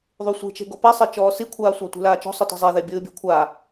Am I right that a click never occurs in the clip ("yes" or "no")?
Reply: yes